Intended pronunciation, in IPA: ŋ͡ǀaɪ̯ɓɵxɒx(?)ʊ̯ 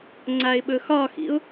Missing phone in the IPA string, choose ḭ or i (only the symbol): ḭ